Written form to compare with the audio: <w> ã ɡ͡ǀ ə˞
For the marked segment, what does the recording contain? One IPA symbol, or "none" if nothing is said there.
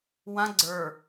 w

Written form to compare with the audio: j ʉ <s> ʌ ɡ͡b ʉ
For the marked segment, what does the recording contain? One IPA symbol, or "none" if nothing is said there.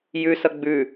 s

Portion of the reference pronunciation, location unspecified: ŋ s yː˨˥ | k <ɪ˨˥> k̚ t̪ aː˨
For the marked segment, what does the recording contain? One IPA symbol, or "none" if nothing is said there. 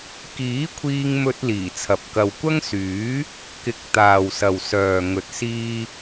ɪ˨˥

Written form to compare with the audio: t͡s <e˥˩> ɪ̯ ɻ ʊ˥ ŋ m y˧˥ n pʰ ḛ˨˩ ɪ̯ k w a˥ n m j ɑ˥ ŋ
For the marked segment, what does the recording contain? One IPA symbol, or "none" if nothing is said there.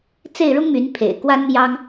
e˥˩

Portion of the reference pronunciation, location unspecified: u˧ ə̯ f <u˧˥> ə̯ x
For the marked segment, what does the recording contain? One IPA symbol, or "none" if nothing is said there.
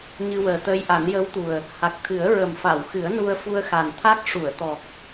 u˧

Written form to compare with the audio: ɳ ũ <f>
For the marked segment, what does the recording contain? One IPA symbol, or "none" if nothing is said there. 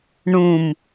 m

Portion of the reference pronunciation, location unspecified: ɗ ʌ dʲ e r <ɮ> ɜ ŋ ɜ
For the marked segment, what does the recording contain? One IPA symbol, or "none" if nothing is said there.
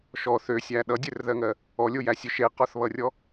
ð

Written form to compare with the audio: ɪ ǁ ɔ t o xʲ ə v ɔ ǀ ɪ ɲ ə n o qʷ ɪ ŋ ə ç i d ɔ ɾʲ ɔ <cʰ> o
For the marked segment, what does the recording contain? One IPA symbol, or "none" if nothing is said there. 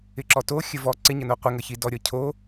cʰ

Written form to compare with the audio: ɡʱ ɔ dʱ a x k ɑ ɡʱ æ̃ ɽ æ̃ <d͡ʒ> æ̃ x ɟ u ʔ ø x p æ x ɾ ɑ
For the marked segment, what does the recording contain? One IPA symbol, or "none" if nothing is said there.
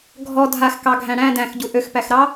d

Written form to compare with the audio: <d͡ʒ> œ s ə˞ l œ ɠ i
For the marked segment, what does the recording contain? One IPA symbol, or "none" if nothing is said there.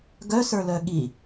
ɡ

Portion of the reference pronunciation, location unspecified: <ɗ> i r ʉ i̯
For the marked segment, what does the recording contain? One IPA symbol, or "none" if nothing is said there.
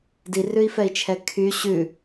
d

